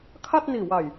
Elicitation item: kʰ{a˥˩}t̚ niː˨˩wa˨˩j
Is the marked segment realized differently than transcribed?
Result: no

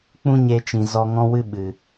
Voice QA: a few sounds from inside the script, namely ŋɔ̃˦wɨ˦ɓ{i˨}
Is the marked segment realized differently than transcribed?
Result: yes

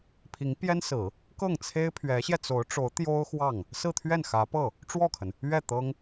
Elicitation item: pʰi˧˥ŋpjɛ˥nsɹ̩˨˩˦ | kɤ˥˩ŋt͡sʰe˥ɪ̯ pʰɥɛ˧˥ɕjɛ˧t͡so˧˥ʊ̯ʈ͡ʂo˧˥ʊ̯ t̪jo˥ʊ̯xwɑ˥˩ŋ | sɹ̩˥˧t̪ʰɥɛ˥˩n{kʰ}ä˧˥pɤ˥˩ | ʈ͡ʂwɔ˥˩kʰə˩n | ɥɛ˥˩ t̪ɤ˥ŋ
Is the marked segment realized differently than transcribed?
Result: yes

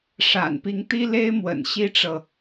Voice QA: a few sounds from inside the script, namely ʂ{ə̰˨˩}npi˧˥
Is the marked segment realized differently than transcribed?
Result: yes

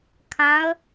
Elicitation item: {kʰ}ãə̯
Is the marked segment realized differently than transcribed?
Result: no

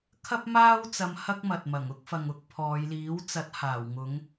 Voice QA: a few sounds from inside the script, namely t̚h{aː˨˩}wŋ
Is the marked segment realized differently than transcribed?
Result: no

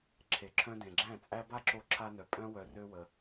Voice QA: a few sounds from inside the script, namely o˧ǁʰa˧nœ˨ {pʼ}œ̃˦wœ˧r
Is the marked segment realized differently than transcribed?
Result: no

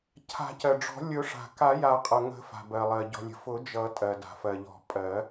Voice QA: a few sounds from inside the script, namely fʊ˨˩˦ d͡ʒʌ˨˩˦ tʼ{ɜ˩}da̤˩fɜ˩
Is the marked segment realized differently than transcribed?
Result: no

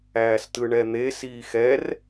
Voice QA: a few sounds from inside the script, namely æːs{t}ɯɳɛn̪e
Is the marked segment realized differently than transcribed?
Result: no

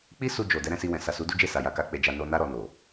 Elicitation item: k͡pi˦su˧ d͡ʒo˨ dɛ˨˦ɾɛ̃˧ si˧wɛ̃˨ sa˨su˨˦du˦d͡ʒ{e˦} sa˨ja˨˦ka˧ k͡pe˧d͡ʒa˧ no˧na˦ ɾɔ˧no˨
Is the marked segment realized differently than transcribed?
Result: yes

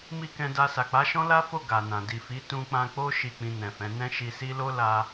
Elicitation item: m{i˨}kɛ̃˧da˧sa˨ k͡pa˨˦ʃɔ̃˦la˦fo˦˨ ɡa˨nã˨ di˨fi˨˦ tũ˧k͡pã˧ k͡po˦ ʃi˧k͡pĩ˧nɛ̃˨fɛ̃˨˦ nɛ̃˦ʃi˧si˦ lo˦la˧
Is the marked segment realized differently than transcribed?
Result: yes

